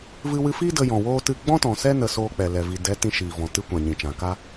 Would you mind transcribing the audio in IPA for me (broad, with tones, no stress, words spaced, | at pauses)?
vɨ˧wɨ˧fiː˦ də˧jɔ̃˨ woː˦tɨ˦˨ ɡ͡bɔ̃˦tɔ̃˨sɛ˦ nə˧soː˧k͡pɛ˨lɛ˨ vi˨ dɛ˨˦ tĩ˧ʃiː˨vɔ̃˨ tɨ˧ kʷã˨ɲĩ˨t͡ʃã˨ ka˦